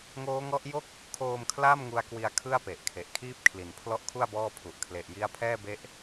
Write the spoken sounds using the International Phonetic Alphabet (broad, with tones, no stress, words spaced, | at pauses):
ŋoː˦˥ŋɔ˦˥ʔjo˥˩k̚ | kʰoː˧mkʰla˥˩m ŋu˦˥a̯kwi˧a̯ kʰɯ˥˩a̯pe˨˩ʔkʰe˨˩ʔkʰiː˥˩p̚ kʰli˨˩npʰlɔ˥˩ʔkʰu˥˩a̯ bɔː˥˩pʰu˨˩ʔ kʰle˨˩ʔji˦˥a̯pʰɛː˥˩ be˦˥ʔ